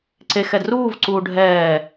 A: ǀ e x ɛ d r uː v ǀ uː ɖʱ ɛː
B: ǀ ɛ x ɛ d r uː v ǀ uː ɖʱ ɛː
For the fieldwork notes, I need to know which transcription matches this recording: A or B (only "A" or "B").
A